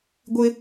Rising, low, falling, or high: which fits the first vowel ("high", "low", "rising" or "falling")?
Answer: high